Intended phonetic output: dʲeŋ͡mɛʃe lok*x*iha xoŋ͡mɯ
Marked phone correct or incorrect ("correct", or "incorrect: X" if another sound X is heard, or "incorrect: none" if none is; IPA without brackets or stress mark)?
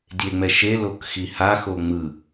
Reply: correct